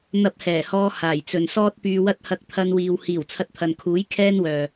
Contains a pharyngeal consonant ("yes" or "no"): no